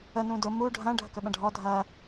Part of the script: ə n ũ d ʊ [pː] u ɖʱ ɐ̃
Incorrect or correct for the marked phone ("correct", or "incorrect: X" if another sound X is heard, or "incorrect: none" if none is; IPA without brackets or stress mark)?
incorrect: m